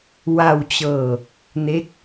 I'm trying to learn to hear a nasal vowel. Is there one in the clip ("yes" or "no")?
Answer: no